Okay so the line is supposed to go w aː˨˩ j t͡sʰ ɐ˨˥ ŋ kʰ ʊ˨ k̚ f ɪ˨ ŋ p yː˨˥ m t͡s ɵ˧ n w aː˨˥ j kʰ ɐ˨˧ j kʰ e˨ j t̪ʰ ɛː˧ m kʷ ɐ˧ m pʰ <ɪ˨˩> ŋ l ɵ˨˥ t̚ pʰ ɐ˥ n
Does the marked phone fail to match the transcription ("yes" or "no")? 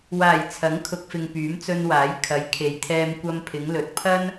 yes